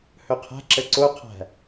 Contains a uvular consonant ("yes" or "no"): yes